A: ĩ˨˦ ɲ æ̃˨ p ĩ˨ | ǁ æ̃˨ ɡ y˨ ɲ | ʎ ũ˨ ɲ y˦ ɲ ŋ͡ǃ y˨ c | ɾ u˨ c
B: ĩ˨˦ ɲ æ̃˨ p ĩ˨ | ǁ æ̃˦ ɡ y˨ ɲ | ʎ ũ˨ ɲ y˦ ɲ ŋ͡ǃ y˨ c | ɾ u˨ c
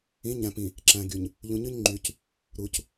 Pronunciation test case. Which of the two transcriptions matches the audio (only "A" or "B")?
A